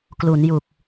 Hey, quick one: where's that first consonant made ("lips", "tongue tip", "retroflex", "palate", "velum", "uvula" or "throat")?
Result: velum